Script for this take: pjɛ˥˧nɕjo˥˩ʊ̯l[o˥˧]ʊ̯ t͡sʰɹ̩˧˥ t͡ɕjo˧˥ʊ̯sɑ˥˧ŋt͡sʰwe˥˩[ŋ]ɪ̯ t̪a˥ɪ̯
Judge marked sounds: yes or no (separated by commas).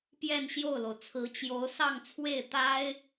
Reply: no, no